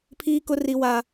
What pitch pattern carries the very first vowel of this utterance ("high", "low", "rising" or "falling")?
high